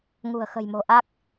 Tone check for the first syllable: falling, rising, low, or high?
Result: low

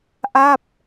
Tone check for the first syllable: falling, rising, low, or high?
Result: falling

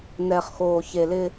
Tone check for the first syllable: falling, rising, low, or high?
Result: low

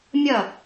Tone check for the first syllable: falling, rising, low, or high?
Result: falling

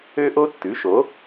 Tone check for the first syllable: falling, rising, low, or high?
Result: high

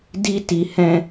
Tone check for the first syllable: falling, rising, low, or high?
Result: high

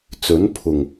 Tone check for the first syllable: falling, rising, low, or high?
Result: rising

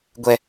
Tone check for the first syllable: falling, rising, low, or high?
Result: high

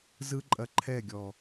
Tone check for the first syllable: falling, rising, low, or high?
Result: high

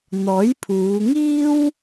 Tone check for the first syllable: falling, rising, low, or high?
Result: rising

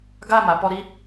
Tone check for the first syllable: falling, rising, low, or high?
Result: falling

